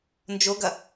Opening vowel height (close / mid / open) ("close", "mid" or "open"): mid